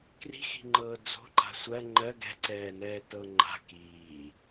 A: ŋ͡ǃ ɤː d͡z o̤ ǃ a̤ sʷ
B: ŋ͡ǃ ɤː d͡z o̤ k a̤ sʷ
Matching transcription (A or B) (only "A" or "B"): A